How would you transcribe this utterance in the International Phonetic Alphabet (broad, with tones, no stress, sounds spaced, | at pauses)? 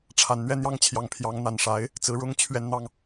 ʈ͡ʂʰ a˨˩ n n̪ ɥ ɛ˥˧ n̪ j ɑ˥˩ ŋ t͡ɕʰ j ɑ˧˥ ŋ pʰ j ɑ˧˥ ŋ n̪ a˨˩ n ʂ a˧˥ ɪ̯ | t͡s ɹ̩˧˥ ɻ ʊ˥ ŋ t͡ɕʰ ɥ ɛ˥˧ n n̪ ɑ˥˩ ŋ